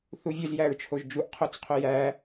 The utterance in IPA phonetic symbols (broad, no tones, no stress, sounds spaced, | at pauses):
θ u vʲ ø z j æ ɹ t͡ʃʰ o ʒ d͡ʒ u ʔ qʰ o t͡s qʰ ø j æ